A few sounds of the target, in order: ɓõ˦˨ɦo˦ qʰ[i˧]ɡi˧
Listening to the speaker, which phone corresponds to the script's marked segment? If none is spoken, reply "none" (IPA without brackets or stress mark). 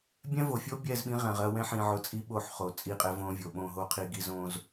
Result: i˧